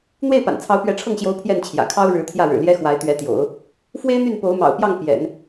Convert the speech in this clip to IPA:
n̪ w e˥˩ ɪ̯ p a̰˨˩ n t͡sʰ ɑ˧˥ ʊ̯ p ɥ ɛ˧˥ ʈ͡ʂʰ ɤ˥˩ ŋ ɕ j o˧˥ ʊ̯ pʰ j ɛ˥˩ n t͡ɕʰ j ä̰˨˩ kʰ ɑ˥ ʊ̯ ɻ ɻ̩˧˥ t̪ʰ j ä˥˩ ɻ ɻ̩˨˩ l j ɛ˥ x w a˧˥ ɪ̯ t̪ ɥ ɛ˧˥ t̪ j o̰˨˩˦ ʊ̯ | f w e˥ ɪ̯ n̪ y˥˩ n p o˧˥ ʊ̯ m ɑ̰˨˩ ʊ̯ p j ɑ˥˩ ŋ p j ɛ̰˨˩˦ n

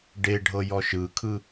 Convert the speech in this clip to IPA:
ɖ e ɖʱ ɤ j ɔ ʃ ɯ kʰ ɯ

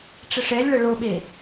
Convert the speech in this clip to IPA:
ʈ͡ʂ ɘ ʂ ɛ lʲ ɭ ɐ ɭ o ɓ e

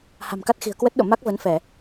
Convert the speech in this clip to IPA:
h a̤˨˩ m k a˦˥ t̚ x i̤˨˩ ə̯ k w ə˦˥ t̚ ɗ o̰˧˨ m a˦˥ k̚ v ə˨˦ n f ɛ˧˩˨

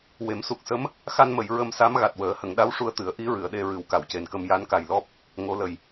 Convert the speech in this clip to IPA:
w e˨˩˦ m s u˨˩ k̚ s ə˧˥ m | x a˧ n m ə˨˩˨ j ɹ ə˧ m s a˧˥ m ɣ a˨˩ t̚ w əː˨˩˦ h ə˨˩˨ ŋ ɗ a˧˥ w ʂ u˧ ə̯ t̪ ɨ˨˩˦ ə̯ ʔ i˧˥ ɹ ɨ˨˩˨ ə̯ ɗ e˧ ɹ ɨ˨˩˦ w k a˨˩˨ w c e˨˩ n k ə˧ m j a˧˥ n k a˨˩ j l ɔ˦˥ p̚ | ŋ o˧˥ l ə˨˩ j

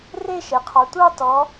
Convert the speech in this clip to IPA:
r e˥˧ ʃ ɛ˩ qʰ ɑ˩˧ tʷ ɑ˥˧ t ɔ˩˧

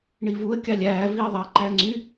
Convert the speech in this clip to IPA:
ɳ i v u ə̯ kʲ ɑ lʲ æː v i ə̯ ðˤ ɑ ǃ æ ŋ͡ǀ y

